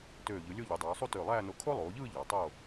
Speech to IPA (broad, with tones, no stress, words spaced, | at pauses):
tøː˧˩ʎɯ˩˧lʲo˥˧ ʎy˩˧dˤoː˩˧sˤu˥˧ tø˧˩lˠæː˥˧no˧ kʰo˥lˠoː˩˧ʎɯː˥˧ ʎɑ˩˧ tˤoː˥˧